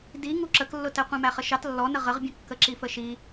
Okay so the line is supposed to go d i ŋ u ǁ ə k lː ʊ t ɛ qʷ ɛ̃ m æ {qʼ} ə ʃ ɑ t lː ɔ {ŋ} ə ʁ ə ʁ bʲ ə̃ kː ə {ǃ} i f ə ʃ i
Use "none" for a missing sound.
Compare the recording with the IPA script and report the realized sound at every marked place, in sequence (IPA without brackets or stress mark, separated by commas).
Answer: χ, n, ǁ